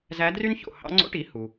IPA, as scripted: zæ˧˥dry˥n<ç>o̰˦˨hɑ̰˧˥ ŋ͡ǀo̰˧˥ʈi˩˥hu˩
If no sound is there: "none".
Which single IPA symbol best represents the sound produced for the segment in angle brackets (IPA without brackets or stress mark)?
ç